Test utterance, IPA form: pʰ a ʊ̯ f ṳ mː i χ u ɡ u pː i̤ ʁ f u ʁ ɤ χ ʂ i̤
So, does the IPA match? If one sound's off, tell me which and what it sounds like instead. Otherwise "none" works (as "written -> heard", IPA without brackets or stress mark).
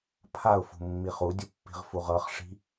ɡ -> dʲ